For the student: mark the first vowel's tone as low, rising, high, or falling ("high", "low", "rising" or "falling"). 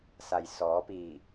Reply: low